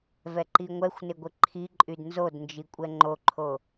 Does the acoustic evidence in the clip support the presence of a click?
yes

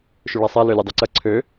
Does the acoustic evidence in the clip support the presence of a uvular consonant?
no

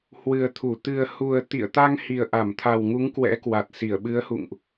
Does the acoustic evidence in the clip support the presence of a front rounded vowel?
no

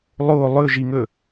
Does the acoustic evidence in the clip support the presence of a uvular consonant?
no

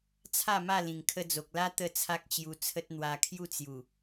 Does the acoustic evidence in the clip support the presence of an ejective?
no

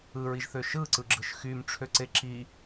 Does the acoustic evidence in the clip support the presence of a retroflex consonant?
yes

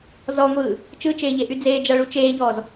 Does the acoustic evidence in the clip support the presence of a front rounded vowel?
yes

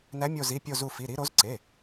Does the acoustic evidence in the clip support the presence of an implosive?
no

